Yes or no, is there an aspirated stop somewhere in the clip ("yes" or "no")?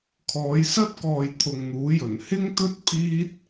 yes